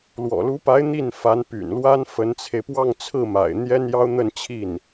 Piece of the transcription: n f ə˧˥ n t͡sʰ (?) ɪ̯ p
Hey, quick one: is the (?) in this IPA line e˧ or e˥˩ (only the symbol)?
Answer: e˧